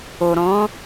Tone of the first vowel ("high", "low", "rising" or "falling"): low